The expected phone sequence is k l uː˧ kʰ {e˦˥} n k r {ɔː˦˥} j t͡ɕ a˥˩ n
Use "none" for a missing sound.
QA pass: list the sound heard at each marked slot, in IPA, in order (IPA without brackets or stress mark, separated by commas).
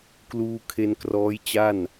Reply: e˧, ɔː˦˥